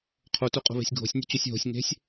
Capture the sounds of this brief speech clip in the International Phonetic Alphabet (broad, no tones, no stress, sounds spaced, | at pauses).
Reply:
qʰ o t o qʼ o̤ β e̤ sʲ ɡʱ o̤ sʲ nʲ ṳ t͡ɕ o sʲ ɦ o̤ sʲ ŋ e̤ sʲ